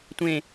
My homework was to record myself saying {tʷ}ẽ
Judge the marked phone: correct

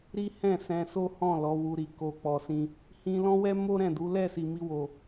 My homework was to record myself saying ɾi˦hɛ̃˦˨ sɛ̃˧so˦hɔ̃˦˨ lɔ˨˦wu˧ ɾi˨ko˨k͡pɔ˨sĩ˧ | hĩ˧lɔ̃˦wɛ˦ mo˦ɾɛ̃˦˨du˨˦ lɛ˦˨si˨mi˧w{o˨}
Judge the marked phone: correct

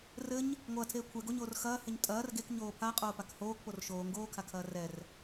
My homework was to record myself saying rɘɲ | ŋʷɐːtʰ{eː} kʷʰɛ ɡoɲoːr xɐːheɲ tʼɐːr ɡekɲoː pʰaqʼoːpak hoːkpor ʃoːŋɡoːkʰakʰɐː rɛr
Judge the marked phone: correct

